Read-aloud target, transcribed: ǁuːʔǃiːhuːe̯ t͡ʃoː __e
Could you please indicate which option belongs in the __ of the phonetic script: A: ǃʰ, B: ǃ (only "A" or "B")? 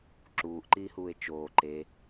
B